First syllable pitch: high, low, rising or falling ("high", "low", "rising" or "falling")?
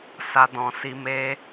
high